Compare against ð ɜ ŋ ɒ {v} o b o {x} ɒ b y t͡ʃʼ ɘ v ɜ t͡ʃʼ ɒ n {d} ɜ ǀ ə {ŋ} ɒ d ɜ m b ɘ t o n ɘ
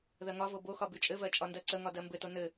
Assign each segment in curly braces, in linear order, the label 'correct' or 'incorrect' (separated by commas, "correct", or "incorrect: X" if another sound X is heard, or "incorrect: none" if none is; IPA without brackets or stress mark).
correct, correct, correct, correct